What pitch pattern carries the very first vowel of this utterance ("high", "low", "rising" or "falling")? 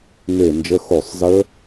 falling